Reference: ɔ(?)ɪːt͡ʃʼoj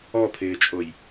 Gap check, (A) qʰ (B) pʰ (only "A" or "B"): B